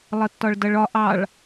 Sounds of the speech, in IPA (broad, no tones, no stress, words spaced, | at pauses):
lˠətːɒɭdʌɭɒ ʔɑɭ